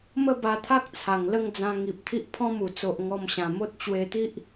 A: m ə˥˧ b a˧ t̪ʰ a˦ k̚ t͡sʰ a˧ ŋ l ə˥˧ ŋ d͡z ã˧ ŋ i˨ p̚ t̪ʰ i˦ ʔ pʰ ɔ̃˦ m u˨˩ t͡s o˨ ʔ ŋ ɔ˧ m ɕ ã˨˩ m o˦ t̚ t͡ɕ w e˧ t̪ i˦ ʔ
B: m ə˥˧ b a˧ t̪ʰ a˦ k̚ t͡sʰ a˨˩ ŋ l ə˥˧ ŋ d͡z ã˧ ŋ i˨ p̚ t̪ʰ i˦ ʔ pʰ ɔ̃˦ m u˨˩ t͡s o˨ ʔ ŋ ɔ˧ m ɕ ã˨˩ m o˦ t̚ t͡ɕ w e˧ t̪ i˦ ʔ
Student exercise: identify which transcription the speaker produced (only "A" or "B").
B